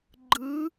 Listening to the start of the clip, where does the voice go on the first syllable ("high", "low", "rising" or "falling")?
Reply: rising